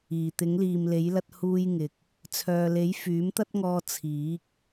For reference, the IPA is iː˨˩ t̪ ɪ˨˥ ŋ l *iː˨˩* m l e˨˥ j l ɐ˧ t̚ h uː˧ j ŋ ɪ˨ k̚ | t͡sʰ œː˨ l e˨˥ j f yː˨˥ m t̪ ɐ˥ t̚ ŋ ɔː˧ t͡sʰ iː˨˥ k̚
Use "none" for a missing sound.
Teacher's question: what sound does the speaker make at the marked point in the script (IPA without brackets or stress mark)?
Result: iː˨